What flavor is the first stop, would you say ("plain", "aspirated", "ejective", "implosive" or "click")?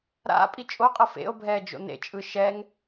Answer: ejective